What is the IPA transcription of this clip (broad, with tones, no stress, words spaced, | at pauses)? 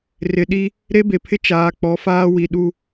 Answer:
rɪ˨ɗi˦ | ɾe˦be˨pʰɪ˦ t͡ʃaː˨k͡pɔ˨˦faː˦ wi˨ɗu˦˨